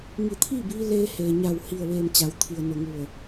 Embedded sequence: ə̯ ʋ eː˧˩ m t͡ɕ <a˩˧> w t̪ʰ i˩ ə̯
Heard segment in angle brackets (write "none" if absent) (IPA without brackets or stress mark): a˩˧